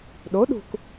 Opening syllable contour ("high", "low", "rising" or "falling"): rising